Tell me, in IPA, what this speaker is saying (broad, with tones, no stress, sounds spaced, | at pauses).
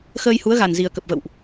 x əː˧ j h u˨˦ ə̯ ɣ a˨˩ n z i˨˩ ə̯ k ə˨˩ p̚ v ə̰˧˨ w ʔ